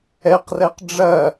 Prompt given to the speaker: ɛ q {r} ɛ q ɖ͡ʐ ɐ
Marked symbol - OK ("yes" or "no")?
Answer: yes